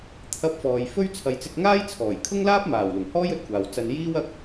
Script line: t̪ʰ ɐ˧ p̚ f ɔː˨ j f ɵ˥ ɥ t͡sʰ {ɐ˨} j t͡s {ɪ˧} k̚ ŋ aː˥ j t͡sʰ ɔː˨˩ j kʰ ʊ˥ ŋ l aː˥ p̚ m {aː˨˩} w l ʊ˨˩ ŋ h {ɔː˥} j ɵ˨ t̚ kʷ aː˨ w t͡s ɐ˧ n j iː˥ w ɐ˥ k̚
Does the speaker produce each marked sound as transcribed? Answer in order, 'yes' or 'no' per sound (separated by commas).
yes, yes, yes, yes